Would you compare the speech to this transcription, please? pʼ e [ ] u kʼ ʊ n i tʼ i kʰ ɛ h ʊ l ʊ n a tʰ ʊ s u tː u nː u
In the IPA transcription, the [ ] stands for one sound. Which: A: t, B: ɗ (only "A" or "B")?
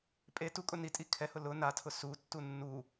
A